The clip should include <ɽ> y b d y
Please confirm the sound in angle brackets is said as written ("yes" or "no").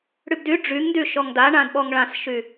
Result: yes